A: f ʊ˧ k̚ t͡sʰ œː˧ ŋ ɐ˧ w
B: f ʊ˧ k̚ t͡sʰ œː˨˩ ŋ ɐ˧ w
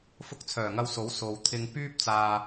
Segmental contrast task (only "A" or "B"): B